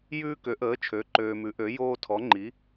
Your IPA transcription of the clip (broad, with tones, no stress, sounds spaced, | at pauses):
j ʉː˦ k ø˩˥ ʔ əː˩˥ t͡ʃʰ ø˩˥ ǃ øː˨ m ʉ˩˥ ʔ ø˩˥ j oː˦ tʰ ɔ˩˥ ŋ͡ǃ i˩˥